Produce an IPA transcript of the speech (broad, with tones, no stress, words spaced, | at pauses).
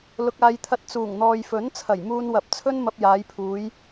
lʊ˧k̚aː˧j t̪ʰɐ˧t̚t͡suː˨˩ŋ n̪ɔː˨jfɵ˨˥nt͡sʰɐ˨˩j muː˧nwɐ˨˥p̚t͡sʰɵ˥nmɐ˧p̚ jaː˨˧jpʰuː˨˧j